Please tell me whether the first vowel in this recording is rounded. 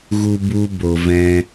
yes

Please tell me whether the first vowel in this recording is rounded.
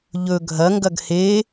yes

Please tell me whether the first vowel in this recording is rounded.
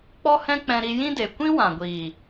yes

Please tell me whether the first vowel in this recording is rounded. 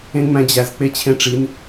no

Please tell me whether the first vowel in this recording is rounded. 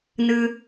no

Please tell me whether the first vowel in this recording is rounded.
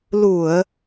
yes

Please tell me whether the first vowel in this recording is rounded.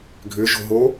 yes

